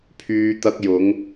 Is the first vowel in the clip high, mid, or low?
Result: high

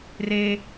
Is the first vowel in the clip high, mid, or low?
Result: mid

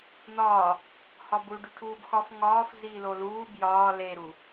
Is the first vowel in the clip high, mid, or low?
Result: low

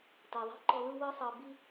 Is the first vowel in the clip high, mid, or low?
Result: mid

